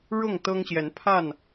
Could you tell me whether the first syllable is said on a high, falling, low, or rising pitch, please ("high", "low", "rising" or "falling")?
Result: falling